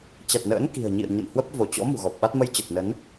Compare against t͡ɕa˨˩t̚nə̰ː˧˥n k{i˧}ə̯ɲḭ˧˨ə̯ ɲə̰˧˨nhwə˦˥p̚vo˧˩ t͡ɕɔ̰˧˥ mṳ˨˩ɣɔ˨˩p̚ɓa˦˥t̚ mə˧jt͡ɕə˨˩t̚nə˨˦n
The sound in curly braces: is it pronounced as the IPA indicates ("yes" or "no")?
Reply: no